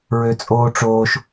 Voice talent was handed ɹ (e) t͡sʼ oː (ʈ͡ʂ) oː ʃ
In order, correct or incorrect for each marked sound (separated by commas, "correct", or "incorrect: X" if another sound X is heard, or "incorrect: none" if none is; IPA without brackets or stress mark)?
incorrect: ø, correct